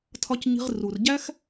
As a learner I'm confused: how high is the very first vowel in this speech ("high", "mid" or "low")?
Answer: low